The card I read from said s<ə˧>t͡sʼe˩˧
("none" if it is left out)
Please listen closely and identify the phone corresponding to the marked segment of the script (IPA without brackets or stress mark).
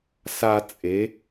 a˧